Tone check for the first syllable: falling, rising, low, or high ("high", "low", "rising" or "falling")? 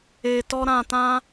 low